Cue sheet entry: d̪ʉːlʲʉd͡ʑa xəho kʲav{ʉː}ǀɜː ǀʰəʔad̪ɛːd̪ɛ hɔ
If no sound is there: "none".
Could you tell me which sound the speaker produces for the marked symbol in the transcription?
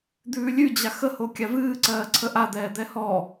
ɨː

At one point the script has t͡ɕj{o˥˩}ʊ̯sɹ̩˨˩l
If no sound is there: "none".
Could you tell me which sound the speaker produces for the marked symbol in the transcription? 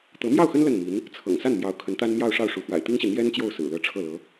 o˥˩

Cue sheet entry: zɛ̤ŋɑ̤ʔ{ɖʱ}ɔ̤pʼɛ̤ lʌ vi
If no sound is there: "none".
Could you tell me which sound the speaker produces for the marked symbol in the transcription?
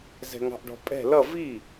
ɖ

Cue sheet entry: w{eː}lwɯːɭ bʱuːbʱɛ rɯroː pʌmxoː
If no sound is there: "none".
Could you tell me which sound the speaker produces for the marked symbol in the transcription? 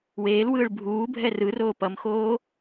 eː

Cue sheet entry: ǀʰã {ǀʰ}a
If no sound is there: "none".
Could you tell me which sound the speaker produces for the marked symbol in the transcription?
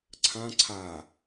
ǀʰ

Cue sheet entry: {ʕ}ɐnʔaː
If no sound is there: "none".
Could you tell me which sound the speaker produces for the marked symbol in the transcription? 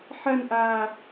ħ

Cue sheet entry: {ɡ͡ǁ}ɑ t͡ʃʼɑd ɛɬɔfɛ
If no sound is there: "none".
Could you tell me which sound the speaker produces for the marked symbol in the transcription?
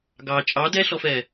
ɡ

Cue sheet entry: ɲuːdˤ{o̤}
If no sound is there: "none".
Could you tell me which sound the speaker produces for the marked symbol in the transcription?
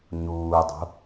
o̤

